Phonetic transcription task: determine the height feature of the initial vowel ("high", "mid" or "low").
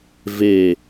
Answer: mid